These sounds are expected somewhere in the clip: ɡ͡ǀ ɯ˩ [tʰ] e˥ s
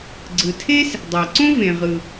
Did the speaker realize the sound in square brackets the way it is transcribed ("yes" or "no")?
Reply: yes